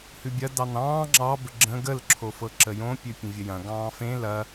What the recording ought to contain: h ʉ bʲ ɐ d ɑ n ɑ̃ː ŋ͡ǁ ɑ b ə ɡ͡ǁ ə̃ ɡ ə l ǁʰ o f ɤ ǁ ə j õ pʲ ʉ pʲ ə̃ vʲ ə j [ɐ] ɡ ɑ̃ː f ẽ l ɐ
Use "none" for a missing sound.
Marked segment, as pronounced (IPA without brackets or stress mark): ɐ̃